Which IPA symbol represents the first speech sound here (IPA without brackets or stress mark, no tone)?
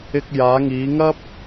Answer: ɪ